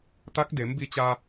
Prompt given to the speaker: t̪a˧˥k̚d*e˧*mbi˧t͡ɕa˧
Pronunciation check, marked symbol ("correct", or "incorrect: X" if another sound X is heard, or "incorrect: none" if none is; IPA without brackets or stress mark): incorrect: e˩˧